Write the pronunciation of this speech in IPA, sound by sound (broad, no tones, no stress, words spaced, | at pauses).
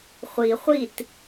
χʷi χʷit